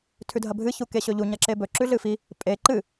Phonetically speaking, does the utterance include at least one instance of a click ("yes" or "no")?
yes